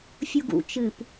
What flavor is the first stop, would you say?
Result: plain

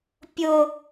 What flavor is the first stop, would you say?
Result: plain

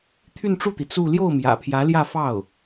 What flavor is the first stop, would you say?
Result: aspirated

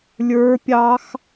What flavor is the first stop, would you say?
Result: plain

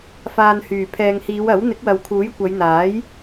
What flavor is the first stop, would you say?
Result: aspirated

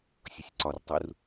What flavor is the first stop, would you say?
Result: click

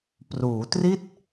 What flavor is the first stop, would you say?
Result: plain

